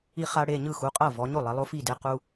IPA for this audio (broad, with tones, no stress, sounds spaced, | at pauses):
i˦ χ a˦ ɽ e˩˧˩ ɲ ɯ˥˩ x u˩˧˩ qʼ ɤ˥˩ v ɔ˩˧ ɲ o˥˩ lˠ ɛ˩˧ lˠ o˦ f i˥˩ d e˦ q u˦